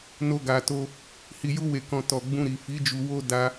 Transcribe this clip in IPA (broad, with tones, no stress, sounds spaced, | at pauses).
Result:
n o˧ ɡ a˨ t o˧ | h i˨ j u˧ w e˨ k ɔ̃˨ t ɔ˨ ɡ͡b ũ˧ ɾ i˨ f i˨˦ d͡ʒ u˧ w o˦ d a˧